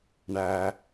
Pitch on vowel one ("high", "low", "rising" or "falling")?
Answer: high